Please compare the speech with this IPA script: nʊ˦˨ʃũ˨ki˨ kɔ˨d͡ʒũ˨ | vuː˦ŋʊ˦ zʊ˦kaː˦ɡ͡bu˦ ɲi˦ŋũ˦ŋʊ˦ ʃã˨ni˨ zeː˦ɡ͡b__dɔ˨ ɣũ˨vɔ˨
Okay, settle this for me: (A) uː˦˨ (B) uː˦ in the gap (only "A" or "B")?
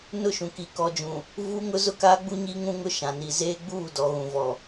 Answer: A